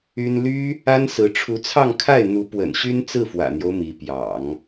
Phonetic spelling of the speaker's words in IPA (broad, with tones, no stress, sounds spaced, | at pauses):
y˥ n l y˥ | a˥ n s ɹ̩˧˥ ʈ͡ʂʰ u˧˥ t͡sʰ ɑ˥˧ ŋ kʰ a˥˩ ɪ̯ n̪ u˧˥ p w ə̰˨˩ n ɕ y˥ n t͡s ɹ̩˥˩ f w ä̰˨˩ n̪ j o˦ ʊ̯ m i˧˥ p j ɑ̰˨˩˦ ŋ